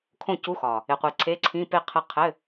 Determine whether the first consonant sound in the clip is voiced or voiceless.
voiceless